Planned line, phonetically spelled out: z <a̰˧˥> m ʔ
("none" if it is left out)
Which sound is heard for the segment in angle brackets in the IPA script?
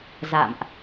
a̰˧˨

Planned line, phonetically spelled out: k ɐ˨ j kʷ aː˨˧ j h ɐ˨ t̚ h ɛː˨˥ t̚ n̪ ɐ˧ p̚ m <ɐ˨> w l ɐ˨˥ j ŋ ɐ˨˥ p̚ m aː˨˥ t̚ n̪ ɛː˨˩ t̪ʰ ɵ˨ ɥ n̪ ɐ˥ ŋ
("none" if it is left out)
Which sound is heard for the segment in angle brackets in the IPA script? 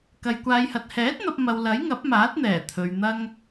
ɐ˨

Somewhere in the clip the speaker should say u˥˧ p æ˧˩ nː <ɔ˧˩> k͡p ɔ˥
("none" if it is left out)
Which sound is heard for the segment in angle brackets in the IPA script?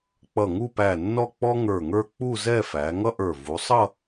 ɔ˥˧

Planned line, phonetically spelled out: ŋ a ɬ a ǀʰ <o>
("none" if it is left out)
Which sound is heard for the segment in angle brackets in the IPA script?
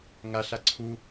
u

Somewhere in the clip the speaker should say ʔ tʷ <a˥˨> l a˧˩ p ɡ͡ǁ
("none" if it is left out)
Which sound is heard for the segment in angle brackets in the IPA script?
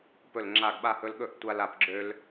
a˦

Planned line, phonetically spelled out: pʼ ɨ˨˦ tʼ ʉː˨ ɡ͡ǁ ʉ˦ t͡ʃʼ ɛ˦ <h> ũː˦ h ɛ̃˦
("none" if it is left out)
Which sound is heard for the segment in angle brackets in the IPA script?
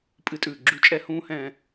h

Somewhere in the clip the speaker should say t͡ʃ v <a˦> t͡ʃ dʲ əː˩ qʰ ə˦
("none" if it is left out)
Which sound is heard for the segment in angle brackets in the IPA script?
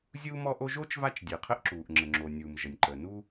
a˦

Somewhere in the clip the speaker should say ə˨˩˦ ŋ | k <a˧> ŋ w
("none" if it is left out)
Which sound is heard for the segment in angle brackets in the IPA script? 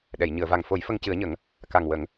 a˨˩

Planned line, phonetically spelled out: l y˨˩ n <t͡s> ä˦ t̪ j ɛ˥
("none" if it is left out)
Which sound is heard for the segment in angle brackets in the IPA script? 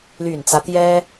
t͡s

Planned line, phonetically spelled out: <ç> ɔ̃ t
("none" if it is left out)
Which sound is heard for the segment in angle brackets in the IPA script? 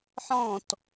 ħ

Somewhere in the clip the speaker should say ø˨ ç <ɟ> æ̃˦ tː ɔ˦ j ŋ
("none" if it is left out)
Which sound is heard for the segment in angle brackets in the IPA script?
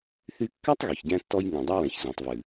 ɟ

